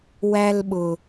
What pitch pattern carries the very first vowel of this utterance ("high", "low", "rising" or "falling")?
high